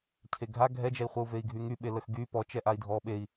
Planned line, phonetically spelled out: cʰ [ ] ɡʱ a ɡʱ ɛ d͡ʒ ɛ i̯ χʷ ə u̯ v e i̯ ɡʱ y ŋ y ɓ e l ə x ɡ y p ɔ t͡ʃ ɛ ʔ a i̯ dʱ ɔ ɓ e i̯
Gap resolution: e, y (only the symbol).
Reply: e